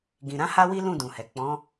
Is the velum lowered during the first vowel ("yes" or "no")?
yes